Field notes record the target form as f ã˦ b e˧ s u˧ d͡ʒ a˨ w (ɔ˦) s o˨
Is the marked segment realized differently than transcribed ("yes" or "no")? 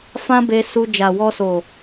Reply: yes